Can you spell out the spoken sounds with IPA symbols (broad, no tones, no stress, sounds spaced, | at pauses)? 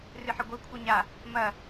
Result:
r ɨ ħ ɘ ɡʷ ɘ kʷʰ ɨ ɲ a | m ɐ